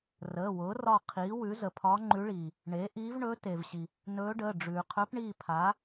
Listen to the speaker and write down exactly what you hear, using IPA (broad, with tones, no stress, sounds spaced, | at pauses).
r əː˩˧˩ w ʊː˩˥ r ɒ˦˨ qʰ iː˩˥ w ʉ˩˥ z ə˩ pʰ ɒ˧˥ ŋ͡ǃ ʉ˧˥ ɭ iː˩ | ɳ e˩˥ ʔ iː˧˥ v ɳ ɵ˧˥ t e˩ v ɕ i˩ | n ɵː˧˥ ɖ əː˩˧˩ ɖ͡ʐ ʉː˩ qʰ ɵ˧˥ p ɳ i˦˨ pʰ a˩˥